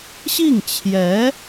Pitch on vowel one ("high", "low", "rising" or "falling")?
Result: falling